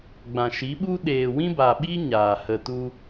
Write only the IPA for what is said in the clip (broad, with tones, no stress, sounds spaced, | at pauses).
ɡ͡b ã˨ ʃ i˨˦ ɓ u˦ ɗ eː˨ w ĩ˦ b a˨ ɓ i˦ ɲ aː˨ h ə˧ t u˦